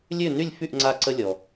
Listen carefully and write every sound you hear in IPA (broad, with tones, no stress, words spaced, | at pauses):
lʲø˥˩ny˥˩lʲ fy˥˩ʔŋ͡ǀa˧ ǀə˧lʲɔ˩